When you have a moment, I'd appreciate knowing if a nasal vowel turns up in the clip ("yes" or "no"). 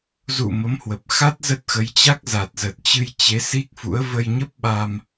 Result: no